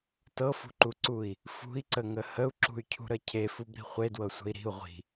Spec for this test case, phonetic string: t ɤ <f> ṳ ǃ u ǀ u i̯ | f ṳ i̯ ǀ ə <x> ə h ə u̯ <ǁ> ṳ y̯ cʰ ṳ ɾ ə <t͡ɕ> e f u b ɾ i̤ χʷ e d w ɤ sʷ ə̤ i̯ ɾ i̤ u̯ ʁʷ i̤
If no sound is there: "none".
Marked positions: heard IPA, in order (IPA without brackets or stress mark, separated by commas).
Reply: f, ŋ, ǁ, cʰ